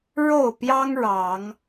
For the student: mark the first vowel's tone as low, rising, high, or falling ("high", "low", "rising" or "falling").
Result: falling